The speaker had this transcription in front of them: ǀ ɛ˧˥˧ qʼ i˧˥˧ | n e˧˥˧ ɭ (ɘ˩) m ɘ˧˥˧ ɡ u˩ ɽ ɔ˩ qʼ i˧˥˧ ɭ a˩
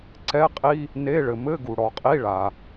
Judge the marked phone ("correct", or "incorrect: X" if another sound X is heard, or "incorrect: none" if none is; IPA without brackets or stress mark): correct